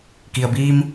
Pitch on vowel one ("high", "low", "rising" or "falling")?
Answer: low